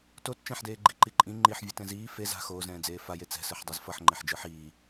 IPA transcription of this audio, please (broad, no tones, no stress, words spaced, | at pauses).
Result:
tot t͡ʃɛ̃ħdeː ɡ͡ǃiǃiǃʼĩ ŋ͡ǃiħvʲut ɛ̃ziː fe za̤ xoːzɛ̃ːd͡zeː faje t͡sɛ̤sɯħdˤez fʌħŋ͡ǃeħ d͡ʒɯħiː